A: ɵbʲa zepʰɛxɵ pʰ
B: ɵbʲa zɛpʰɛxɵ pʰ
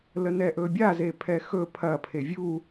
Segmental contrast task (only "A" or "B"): A